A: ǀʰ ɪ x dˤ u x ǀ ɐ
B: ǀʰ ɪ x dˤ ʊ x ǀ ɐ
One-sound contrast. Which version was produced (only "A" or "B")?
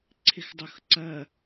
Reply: B